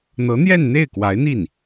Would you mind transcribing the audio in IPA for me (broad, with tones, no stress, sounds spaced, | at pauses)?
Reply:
n̪ ɤ˧˥ n̪ j ɛ˥˧ n n̪ e˥˩ ɪ̯ k w a˧˥ ɪ̯ n̪ i˥˩ n